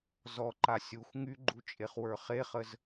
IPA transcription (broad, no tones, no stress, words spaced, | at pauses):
zɔǃa sʲuxʷ ŋyɡ͡ǃu t͡ʃʼeχwə˞χeχəz